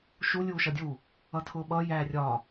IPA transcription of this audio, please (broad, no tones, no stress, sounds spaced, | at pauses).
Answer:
ʃ u lʲ uː ʃ ʌ dʲ u | ʌ tʰ ʊː ɓ ʌ j æː rʲ ɒ